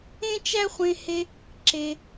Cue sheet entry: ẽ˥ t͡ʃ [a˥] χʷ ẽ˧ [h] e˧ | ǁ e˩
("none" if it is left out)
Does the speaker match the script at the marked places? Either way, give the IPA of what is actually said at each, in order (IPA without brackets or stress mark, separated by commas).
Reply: æ˥, h